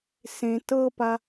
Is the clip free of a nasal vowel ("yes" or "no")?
no